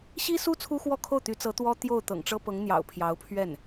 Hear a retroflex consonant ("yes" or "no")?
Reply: yes